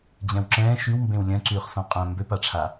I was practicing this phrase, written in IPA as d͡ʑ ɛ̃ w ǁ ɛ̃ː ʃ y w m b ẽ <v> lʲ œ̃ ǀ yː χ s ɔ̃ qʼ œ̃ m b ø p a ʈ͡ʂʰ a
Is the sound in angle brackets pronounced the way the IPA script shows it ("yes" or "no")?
no